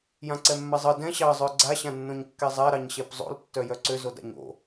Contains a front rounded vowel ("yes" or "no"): yes